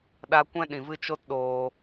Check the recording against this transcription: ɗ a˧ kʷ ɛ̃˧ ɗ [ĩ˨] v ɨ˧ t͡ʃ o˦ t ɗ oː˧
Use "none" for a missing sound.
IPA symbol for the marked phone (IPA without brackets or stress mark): ĩ˨